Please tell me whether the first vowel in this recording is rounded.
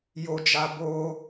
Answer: yes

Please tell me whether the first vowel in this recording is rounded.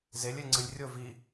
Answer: no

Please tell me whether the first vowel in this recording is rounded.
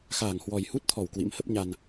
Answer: no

